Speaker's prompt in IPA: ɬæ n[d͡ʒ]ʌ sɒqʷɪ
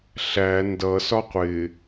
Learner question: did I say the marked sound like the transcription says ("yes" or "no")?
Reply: no